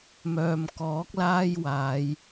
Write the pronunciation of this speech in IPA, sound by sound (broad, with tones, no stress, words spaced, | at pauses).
mœː˨mkɔː˨˥k̚laː˥j waː˨˧j